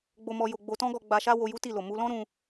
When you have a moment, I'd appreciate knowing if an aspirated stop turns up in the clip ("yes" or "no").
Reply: no